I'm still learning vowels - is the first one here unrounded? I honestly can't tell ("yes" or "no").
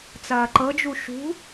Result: yes